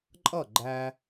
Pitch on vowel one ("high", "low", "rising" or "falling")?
falling